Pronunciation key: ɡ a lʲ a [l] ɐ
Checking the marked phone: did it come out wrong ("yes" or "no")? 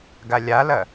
no